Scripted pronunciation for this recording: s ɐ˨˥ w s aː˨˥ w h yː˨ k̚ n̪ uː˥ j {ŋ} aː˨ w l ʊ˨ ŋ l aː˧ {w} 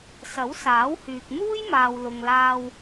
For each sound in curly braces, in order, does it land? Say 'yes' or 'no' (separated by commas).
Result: no, yes